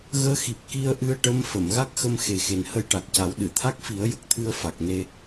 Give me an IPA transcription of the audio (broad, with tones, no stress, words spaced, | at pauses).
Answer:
ɣəː˧˥xi˨˩p̚ ki˧ə̯ʔɨ˧ə̯ ʈə˧˥m fə˨˩˨m ɣa˦˥k̚xə˧mxe˨˩ xe˨˩nhə˧jʈa˨˩k̚ca˨˩˦w ɗɨ˨˩˨t̪ʰa˦˥k̚fi˨˩˦ə̯ jə˨˩k̚t̪ʰɨ˧ə̯ fa˨˩k̚ne˧